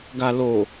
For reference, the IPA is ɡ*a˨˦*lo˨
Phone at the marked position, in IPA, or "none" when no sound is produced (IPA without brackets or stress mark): a˨